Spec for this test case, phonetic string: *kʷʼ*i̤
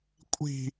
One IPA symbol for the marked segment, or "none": kʷʼ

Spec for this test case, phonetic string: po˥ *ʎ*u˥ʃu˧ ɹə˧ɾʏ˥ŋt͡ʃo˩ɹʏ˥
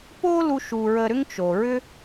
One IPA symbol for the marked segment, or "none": l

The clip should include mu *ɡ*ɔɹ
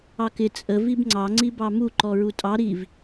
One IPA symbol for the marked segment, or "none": ǃ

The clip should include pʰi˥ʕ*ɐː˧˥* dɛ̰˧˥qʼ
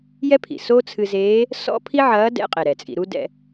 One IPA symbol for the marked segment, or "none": ɐː˧˥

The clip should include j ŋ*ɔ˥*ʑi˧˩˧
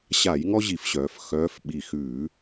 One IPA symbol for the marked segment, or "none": ɔ˥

